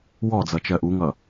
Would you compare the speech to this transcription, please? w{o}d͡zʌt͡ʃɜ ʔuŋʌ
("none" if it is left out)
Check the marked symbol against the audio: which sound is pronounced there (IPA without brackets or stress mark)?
ɔ